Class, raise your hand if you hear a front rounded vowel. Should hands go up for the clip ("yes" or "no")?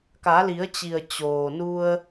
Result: no